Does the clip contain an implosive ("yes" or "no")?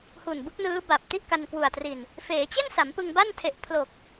no